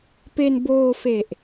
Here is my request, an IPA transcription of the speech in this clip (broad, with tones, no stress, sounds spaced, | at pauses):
p e˧ n b oː˧ f e˨˩ ʔ